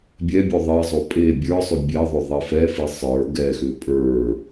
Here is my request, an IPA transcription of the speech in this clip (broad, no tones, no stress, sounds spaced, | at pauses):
bʲ ɛ bʲ o ðˤ e zˤ o pʼ e bʲ ə˞ sˤ ʏ bʲ ɛ ðˤ ʏ ðˤ e f ɛ f i sˤ ə˞ ɡ ɛ x ʏ pʼ ə˞